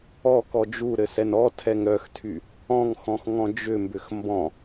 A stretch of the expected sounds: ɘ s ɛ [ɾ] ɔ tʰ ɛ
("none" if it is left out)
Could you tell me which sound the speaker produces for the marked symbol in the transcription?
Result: n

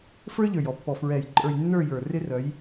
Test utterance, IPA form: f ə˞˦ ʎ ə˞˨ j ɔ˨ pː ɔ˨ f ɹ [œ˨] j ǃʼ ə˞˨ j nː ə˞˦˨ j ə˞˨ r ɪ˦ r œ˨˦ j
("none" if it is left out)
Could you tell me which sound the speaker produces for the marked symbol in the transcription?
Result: ɛ˨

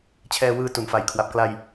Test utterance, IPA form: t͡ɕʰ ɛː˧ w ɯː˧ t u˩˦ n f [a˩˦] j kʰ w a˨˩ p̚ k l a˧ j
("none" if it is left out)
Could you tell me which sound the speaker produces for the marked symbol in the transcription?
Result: a˨˩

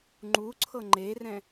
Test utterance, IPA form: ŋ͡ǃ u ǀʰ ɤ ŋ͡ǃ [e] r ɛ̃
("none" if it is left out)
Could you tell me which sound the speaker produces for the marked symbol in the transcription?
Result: e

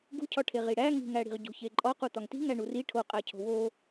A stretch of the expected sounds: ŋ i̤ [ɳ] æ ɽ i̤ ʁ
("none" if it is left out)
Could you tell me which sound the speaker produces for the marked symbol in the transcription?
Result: ŋ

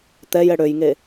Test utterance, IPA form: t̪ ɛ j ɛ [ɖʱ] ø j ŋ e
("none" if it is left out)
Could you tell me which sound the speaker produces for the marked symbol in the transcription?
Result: ɽ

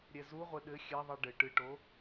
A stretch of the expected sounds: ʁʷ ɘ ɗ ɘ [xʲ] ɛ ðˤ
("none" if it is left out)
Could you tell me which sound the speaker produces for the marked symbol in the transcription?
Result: xʲ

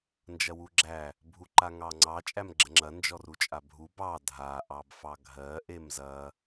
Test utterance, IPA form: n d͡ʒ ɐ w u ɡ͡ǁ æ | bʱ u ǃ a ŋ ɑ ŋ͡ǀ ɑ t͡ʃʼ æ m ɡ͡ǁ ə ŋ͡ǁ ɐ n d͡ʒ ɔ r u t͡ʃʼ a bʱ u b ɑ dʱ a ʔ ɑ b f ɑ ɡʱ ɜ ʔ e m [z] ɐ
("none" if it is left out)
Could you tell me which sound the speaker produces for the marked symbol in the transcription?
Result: z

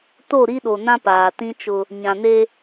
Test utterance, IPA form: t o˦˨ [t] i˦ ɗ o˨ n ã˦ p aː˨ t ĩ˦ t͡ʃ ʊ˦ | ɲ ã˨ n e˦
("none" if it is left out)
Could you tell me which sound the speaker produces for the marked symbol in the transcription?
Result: ɾ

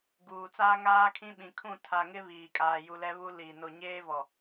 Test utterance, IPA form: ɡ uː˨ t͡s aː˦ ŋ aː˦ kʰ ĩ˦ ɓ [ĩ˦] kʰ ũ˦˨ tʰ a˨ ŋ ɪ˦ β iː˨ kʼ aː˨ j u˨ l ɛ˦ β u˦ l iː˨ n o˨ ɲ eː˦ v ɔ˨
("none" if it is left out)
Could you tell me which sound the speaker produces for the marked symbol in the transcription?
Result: ĩ˨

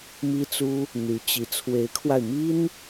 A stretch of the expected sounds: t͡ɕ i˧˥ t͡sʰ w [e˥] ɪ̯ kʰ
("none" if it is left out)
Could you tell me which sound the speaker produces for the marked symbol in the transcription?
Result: e˧˥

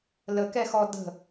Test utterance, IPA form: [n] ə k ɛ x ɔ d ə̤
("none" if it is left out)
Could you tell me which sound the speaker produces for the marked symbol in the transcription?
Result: l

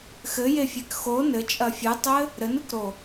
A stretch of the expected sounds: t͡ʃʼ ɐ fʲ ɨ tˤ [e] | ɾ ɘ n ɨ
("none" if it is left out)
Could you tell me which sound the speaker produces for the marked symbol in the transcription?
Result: ɘ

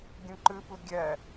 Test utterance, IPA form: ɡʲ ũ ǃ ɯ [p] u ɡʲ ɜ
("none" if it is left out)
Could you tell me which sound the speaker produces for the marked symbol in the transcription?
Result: p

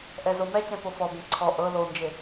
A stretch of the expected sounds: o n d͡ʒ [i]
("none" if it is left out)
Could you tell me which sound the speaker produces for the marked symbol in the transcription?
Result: e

